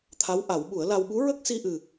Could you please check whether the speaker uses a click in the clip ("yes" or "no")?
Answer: no